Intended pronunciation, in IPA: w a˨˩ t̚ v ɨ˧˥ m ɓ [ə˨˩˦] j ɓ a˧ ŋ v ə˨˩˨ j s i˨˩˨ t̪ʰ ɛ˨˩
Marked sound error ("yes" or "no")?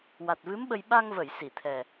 yes